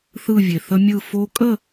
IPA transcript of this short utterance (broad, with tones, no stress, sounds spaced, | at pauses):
θ ɯ˥˧ vʲ e˨ θ ə˦˥ mʲ ɯ˥˧ f o˦˥ kʼ ə˥˧